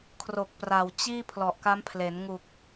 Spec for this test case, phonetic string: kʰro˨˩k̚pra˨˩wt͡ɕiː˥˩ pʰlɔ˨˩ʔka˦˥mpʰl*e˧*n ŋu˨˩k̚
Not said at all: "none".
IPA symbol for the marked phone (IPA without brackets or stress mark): e˩˦